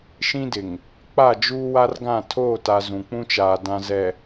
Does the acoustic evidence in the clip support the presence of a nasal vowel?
yes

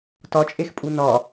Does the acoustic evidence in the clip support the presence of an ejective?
yes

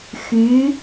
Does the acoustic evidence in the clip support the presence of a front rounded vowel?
yes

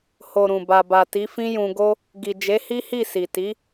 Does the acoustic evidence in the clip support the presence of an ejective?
no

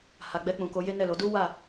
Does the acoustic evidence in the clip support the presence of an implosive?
no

